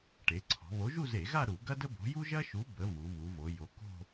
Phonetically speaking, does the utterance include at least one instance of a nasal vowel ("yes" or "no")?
no